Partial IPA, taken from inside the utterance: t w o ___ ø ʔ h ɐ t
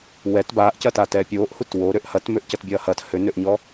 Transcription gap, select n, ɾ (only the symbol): ɾ